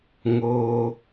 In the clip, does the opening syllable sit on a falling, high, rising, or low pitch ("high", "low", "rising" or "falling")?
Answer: high